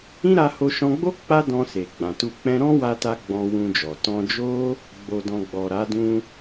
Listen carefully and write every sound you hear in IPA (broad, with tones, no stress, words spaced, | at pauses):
ĩ˦ɾa˧ ho˧ʃɔ̃˧ɡ͡bo˦ k͡pa˦ dɔ̃˧ se˨ɡ͡bã˨tu˧k͡pɛ̃˦ ɾɔ̃˦wa˧ta˧ ɡ͡bɔ̃˧wũ˧d͡ʒɔ˨ tɔ̃˧d͡ʒo˦ | ɡ͡bo˨dɔ̃˨ ɡ͡bɔ˨ɾa˨˦ dũ˧